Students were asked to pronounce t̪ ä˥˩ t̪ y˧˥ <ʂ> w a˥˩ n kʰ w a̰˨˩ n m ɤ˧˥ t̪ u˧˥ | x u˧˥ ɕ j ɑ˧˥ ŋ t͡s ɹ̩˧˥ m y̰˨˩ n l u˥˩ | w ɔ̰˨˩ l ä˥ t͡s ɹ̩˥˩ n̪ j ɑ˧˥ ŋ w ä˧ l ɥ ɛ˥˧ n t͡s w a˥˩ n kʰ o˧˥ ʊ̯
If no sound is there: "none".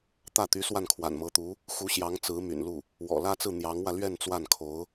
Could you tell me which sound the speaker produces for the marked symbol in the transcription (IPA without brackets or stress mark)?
s